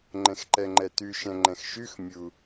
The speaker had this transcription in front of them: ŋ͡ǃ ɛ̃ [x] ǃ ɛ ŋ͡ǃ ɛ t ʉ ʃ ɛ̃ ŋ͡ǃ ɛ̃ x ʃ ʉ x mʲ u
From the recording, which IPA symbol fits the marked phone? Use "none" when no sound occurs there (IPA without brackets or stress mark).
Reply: x